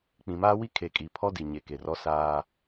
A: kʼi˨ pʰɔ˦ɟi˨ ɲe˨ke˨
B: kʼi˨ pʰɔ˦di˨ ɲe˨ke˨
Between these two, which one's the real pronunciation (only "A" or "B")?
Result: B